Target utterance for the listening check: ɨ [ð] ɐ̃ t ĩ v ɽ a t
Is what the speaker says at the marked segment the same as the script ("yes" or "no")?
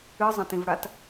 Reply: no